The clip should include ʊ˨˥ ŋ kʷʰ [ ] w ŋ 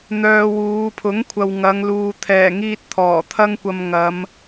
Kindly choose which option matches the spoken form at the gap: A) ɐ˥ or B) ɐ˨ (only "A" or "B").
B